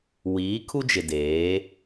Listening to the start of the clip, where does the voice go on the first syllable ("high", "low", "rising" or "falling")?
rising